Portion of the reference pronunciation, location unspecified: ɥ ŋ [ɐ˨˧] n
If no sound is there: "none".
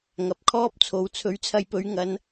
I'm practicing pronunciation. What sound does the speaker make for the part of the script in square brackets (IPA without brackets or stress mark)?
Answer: ɐ˨˧